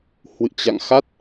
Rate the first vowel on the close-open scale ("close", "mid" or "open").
close